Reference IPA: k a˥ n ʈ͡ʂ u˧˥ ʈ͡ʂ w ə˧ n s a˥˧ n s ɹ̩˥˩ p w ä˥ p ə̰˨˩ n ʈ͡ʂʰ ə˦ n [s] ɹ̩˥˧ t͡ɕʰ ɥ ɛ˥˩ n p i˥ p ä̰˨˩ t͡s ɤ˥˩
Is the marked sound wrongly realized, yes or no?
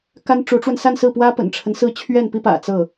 no